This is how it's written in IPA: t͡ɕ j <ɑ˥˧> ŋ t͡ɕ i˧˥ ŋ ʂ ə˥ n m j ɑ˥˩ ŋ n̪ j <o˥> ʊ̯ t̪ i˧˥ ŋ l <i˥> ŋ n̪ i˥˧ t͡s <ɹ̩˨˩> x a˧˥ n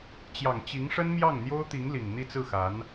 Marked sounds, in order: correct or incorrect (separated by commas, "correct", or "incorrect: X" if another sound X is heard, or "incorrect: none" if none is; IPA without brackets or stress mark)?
incorrect: ɑ˨˩, correct, incorrect: i˨˩, incorrect: ɹ̩˥˩